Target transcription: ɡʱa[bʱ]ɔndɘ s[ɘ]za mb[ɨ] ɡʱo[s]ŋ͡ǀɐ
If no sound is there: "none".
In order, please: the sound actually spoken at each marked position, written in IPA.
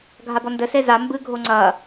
b, e, ɨ, none

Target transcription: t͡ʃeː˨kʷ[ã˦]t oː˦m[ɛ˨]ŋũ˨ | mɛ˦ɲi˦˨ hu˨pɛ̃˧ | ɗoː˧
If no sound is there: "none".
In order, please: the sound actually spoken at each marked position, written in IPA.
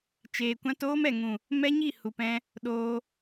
ã˦, ɛ˨

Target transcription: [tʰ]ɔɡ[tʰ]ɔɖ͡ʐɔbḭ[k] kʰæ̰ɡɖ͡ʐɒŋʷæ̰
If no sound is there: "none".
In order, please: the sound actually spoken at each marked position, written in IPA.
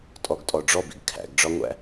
tʼ, tʼ, ɡ

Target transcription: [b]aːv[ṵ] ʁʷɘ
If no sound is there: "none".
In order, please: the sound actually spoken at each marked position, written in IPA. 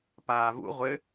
p, ṵ

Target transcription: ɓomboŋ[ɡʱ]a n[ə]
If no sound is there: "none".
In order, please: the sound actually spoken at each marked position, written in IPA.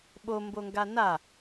ɡ, a

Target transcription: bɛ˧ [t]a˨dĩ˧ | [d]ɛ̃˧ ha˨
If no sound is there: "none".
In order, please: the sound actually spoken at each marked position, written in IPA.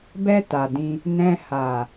t, n

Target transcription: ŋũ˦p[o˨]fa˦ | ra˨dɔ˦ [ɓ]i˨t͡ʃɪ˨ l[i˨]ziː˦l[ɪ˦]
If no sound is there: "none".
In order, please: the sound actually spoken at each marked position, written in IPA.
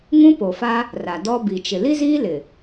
o˨, b, i˦, ɪ˨

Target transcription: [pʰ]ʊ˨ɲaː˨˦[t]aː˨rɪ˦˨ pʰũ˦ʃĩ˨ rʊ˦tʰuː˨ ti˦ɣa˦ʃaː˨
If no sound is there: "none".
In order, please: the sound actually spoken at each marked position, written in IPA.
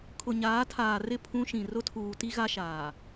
kʰ, tʰ

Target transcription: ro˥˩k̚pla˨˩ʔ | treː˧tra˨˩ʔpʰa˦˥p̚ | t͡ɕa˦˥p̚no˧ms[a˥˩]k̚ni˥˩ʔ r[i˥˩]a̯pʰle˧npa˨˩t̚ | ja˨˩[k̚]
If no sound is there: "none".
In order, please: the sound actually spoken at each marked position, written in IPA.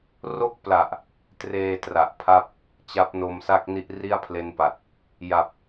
a˥˩, i˥˩, p̚

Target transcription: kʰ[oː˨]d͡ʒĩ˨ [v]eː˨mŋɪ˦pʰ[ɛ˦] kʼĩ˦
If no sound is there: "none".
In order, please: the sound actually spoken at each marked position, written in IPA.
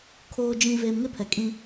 oː˨, v, ɛ˨

